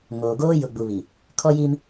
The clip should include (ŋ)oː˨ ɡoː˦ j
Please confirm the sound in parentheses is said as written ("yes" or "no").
yes